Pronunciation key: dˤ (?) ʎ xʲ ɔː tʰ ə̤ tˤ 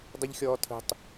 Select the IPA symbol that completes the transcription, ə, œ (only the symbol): ə